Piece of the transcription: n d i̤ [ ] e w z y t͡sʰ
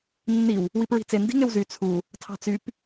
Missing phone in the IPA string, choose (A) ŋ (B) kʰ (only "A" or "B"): A